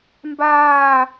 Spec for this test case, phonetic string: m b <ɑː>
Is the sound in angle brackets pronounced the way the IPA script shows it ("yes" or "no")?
no